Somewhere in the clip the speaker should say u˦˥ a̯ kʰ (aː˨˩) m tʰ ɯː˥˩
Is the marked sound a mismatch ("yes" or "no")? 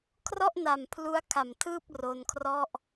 yes